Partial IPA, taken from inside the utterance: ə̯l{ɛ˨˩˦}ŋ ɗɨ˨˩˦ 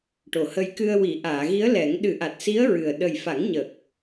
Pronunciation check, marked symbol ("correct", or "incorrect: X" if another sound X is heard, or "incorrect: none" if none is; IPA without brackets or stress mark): correct